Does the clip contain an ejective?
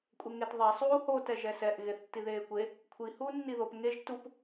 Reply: yes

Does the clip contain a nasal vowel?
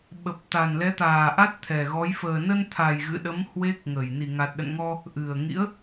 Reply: no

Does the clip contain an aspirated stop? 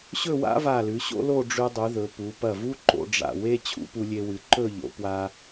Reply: yes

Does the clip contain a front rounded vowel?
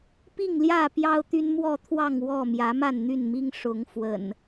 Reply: yes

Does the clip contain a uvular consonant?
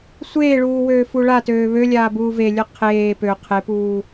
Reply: yes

